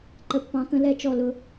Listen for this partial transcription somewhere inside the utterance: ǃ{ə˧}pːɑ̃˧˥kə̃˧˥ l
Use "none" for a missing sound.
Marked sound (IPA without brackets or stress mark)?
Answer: ə˧